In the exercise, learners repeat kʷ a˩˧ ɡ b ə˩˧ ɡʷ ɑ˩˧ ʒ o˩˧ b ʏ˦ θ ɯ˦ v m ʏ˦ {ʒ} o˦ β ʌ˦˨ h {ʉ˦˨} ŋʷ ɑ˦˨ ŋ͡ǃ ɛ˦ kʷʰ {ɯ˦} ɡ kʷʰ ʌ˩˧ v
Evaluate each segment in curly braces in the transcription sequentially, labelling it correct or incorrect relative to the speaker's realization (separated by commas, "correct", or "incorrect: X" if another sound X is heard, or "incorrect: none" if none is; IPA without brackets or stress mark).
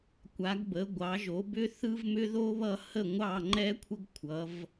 incorrect: ð, incorrect: ə˦˨, incorrect: ə˦